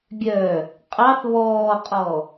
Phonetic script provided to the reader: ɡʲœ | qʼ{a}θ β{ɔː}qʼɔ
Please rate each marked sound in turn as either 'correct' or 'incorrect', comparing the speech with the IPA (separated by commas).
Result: incorrect, correct